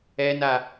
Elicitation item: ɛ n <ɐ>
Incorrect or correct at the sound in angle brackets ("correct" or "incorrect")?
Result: incorrect